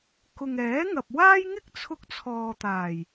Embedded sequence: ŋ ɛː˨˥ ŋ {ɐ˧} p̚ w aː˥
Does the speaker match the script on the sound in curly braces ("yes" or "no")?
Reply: no